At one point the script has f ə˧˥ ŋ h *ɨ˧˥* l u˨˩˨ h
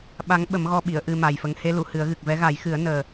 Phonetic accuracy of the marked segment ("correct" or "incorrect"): incorrect